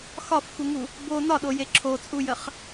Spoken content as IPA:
xɒfxuŋu | bo nɒɗoje ǁʰot͡sʼujəχ

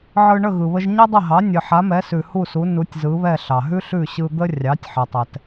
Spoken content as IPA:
ʕɯ˧ɳə˥˩ ɣɯ˩βə˧ʒ ɲɛ˥dˤə˥˩ɦɑ˩˥ nʲɨ˩ħa˩˥mɛ˩˥sʉ˩ hu˥˩su˩˥ nu˩˥tʲzɯ˩˥βɛ˥˩ ɬɑ˩ɦʉ˥ɬʉ˥˩ ɕɯ˧d̪ə˥ rʲɑ˩˥tʲħɛ˩tˤɛ˩t

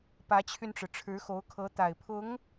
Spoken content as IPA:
pä˧˥t͡ɕʰy˧nʈ͡ʂɻ̩˩ ʈ͡ʂʰɻ̩˧˥xo˧˥ʊ̯kʰɤ˧˥t̪a˨˩ɪ̯ pʰʊ˧˥ŋ

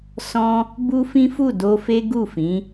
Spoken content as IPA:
sɔ̃˦ | bu˦fĩ˦fu˦˨ do˧fe˦ɡu˦˨fĩ˨˦

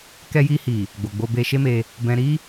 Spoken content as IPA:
kɛ˧ji˧hi˨ | ɡ͡bo˨ɡ͡bo˧ be˧ ʃe˦me˧ | bɛ̃˧ɾi˦

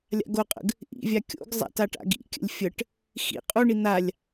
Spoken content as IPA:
lʲa̰ɡoqʼə̰ɡ | ʔḭvʲa kʲo̰ɡzˤa̰t aʈa̰ɡḭkʲə̰lʲ fʲəʈ | xḭ qʼuɳi n̪alʲ

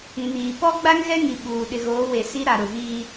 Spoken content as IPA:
ĩ˨niː˨ pɔ˦ ɡ͡ba˦ŋɣɛ˦ŋi˨ ɓuː˨ ɗɪ˨ɣoː˨˦we˨ si˦ɾa˨ ɾʊ˨viː˦

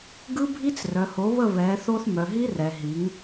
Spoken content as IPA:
ɡɯ˦bʱi˦t͡s rœ˨ho˨˦βə˦˨ βɛ˨˦θo˦θ mœ˨ɦi˦rɛ˨ɦi˨˦ŋ

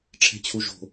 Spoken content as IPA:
ʈ͡ʂʰɛ̤t͡ɕʰuʒo̤

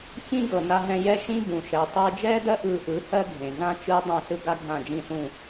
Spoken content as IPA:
çĩ˥ɡɤ˩na˧ɦɛ̃˧ jɛ˥ʃĩ˥ bũ˩ʃɛ˩ tˤɯː˧d͡ʒɛː˥dɜ˥ ʔɯː˧ʔɯ˩˥ hɜ˥ɡʱẽ˩ɮã˥ t͡ʃɯː˥ dˤẽ˥˩ɬɯ˥ ɡa˥ɡʱã˥˩d͡ʒĩ˥˩ɬũ˥˩

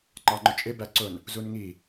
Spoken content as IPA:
ŋ͡ǃɑŋ͡ǃʊt͡ʃʼɪ bæǀʊn | zunŋi

